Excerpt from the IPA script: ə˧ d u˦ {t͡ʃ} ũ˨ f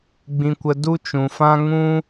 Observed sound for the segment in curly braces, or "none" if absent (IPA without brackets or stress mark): t͡ʃ